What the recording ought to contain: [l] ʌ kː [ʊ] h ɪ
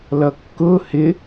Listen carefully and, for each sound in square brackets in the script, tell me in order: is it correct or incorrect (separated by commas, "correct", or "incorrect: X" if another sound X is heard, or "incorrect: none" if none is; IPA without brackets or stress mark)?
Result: correct, correct